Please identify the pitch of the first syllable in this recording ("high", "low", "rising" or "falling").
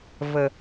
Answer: low